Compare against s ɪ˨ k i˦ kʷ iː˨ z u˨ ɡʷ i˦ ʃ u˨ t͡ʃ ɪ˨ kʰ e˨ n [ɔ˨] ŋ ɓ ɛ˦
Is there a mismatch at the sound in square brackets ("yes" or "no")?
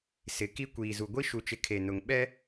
yes